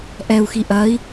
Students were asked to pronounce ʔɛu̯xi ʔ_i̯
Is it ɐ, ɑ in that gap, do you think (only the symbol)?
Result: ɐ